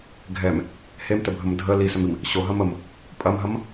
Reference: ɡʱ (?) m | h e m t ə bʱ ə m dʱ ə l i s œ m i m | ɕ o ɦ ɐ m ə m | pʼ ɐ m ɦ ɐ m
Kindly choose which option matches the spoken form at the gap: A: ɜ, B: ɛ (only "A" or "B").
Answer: B